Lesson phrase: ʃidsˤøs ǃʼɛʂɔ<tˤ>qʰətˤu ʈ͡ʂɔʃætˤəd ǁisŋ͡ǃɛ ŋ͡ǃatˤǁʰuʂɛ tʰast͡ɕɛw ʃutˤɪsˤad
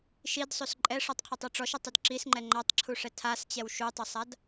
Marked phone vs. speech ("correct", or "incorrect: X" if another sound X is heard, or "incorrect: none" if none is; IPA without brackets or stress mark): correct